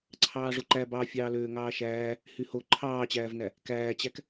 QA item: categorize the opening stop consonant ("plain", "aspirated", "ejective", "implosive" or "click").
click